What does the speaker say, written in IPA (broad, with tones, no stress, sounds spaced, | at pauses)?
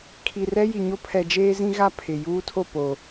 kʰ i˨ r ɛ˦ j i˨ ɲ o˦ pʰ ɛ˨ d͡ʒ eː˦ z ĩ˦ ɣ a˦˨ pʰ ɪ˨ j uː˦ tʰ o˦˨ p o˨